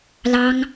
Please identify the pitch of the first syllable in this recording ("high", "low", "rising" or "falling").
high